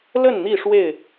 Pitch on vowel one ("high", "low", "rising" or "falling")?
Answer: falling